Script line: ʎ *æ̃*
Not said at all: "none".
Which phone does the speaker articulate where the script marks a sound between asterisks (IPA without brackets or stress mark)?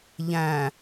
æ̃